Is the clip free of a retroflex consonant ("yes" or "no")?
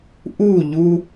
yes